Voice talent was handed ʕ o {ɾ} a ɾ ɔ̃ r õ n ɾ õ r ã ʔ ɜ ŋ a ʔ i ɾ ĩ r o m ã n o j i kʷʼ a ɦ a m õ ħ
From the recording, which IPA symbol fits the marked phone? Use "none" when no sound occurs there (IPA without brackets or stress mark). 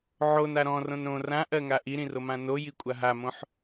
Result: n